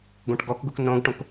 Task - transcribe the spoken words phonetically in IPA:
ɡʷ ẽ ʈ ɡ ɔ k ɡ u k n õ ɡ ʈ õ k

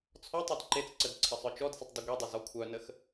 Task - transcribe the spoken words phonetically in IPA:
t͡sʰ ɔ tˤ e d ǃ e t͡s ǀ ə d ǀʰ ə sˤ œ t͡ʃ ɔ d s ə tˤ d i ɡʷ e dˤ ʊ z ɔ kʷʰ œ n ə x

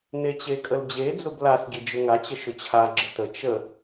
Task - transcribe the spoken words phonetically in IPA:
n e t͡ɕ e kʼ ə l d͡ʑ e d͡z ʊ b l a s ɡʲ e d͡ʒ ʊ ŋ a t͡ɕ ə ʃ ʊ t͡ɕʰ a ɡ͡ǁ ə t ə t͡ʃ ə

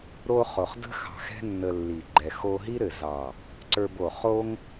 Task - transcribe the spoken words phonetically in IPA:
ɾ o˧ χ o˨ χ d ə̤˦ x ɑ̤˧ x ɛ̤˦ nː ə˧ lː i˨ ɡ͡ǃ ɛ˨ x o˧ ɦ i˦ ɾ ɘ˨ z ɑ˨ | ǀ ə˞˧ b o˨ χ o˦ ŋ

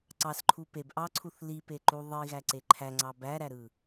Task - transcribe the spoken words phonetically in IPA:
ǀ ɑ s ǃʰ u p e b ʔ ɑ ǀʰ u θ l i p e ǃ u ðˤ i ɣ æ ǀ e ǃʰ æ ŋ͡ǀ ɑ b æ ɾ æ ɾ ɯ

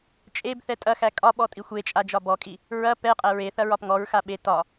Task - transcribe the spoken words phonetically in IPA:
t͡ʃʼ e b θ ɛ tʼ ɐ x æ kʼ ɒ ɓ ɔ tʼ i xʷ e t͡ʃʼ a d͡ʒ ɒ b ɔ kʼ i | ɹ ɐ p ɛ qʼ æ ɹ e θ ɐ ɹ ɒ p ŋ ɔ ɹ x a ɓ e t ɒ

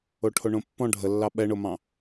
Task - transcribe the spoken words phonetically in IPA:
o ʈʰ o ɳ õ pː ɔ̃ ɖʱ ə lː ɑ ɓ ɛ ɳ o m ɑ̃

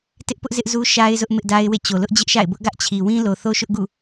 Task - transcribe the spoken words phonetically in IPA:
t ɪ˦ ʔ p ʊ˦ ʔ z ɪ˦ ʔ z u˦ ʃ a˦ ɪ̯ z ʊ˦ ʔ m ɪ˦ ʔ d a˦ ɪ̯ w ḛ˦˨ t͡ɕ o˨ l ʊ˦ ʔ d͡ʑ ɪ˦ ʔ ʃ a̰˦˨ ɪ̯ b ʊ˦ ʔ ɡ ä˦ ʔ t͡ɕʰ i˨ w ĩ˦ l o˨ θ o˦ ʃ ʊ˦ ʔ ɡ ṵ˦˨

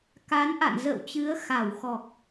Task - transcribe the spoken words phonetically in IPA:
k a˨˦ n ʔ a̰˧˨ n z ə̰ː˧˨ w t͡ɕ ɨ˨˦ ə̯ x a˧˩ w x ɔ˨˩ k̚

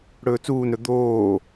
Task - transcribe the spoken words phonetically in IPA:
ɽ ɵː t͡s uː n ɾ ɵ d̪ oː

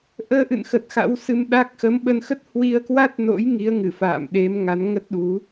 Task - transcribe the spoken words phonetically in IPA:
ʔ əː˧ ʔ ɨ̰˧˨ n x ə˨˩ t̚ x a̰˧˥ w s ɨ˧ m ɗ a˦˥ k̚ x ə˨˦ m ɓ ə˧ n x ə˦˥ t̚ h w i˧ ə̯ k w a˦˥ t̚ n o̰˧˥ j ŋ i˨˦ ə̯ ŋ ɨ˧˩ f a̰ː˧˨ m ɗ e˨˦ m ŋ a˨˦ n ŋ ə˦˥ t̚ ɗ u˨˦

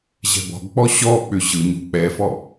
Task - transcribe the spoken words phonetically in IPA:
ʑ ɛ̤ b ɔ̤ ɡ k͡p ɔ ɕ ɔ k͡p ʏ ʑ ɯ ɲ ṳ k͡p ɛ f ɔ

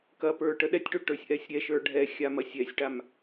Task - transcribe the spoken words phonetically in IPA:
k ɐ p ə˞ ʈ ə ɗ ɛ tʲ ʈ ø ʈ ə˞ sʲ ʔ ɛ sʲ ɾʲ ɛ ʃ ə˞ ɖʱ ɛ xʲ a m ɐ sʲ ɛ sʲ ʈ a m

